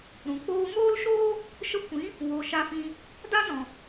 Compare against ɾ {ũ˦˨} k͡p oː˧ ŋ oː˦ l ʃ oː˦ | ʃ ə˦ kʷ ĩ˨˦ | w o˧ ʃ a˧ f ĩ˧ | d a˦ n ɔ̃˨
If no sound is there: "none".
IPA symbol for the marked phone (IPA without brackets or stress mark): ũ˨